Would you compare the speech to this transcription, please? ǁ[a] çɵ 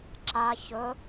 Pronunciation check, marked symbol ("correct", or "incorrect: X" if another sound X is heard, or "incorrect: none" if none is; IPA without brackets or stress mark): correct